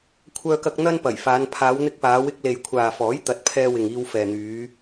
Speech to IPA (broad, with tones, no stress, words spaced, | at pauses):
kʷʰœː˧kɐ˧k̚ n̪ɐ˥npɐ˨˩jfaː˨˧n pʰaː˨˧wn̪ɪ˧k̚paː˨˧wɪ˧k̚ le˨jkʷʰaː˨fɔː˨˥j t̪ɐ˨˥t̚pʰɛː˧wɪ˨ŋ iː˧w fɛː˨n̪yː˨˧